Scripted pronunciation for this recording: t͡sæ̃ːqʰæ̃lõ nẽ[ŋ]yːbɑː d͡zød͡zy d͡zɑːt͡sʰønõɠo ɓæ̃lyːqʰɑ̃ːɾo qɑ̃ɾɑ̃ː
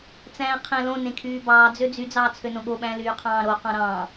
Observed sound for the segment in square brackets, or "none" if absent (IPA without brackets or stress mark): kʰ